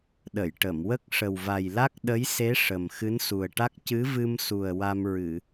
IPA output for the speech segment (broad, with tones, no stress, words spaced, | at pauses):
ɗə˨˩˨jʈə˨˩˨mwə˦˥k̚ ʂə˨˩wva˨˩jla˦˥k̚ ɗə˧˥jse˧˥ ʂə˨˩m xɨ˧˥nsu˨˩ə̯ʈa˦˥k̚ cɨ˧˥vɨ˧msu˨˩ə̯ wa˧mɹɨ˨˩˨